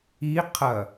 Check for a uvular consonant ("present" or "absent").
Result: present